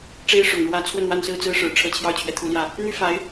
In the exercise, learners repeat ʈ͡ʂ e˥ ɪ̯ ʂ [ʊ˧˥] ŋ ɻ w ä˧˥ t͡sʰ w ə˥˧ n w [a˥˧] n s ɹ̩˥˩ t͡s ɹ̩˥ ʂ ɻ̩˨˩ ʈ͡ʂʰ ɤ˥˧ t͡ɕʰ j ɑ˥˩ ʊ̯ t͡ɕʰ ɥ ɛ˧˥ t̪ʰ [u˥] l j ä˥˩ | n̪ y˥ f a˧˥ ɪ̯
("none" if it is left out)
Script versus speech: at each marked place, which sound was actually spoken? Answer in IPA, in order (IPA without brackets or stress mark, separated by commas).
ʊ˨˩, a˥˧, u˧˥